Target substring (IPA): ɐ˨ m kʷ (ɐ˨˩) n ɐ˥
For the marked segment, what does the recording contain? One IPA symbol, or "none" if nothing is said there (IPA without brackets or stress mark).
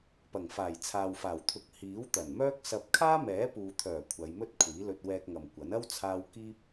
ɐ˨˥